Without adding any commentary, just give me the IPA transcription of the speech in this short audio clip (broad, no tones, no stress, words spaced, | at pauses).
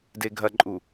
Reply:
deɡʱɐǃʼu